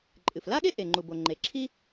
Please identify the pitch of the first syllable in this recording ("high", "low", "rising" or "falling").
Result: low